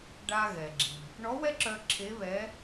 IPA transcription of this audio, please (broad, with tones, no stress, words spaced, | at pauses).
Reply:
ɖa˧ɣɛ˩ ɡ͡ǁi˩ | ɳɔ˧˥wɛ˥ǁœ˧ ǁʰe˧˥βɛ˧˥